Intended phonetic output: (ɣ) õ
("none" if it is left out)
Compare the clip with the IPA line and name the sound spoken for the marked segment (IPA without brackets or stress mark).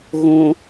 ɣ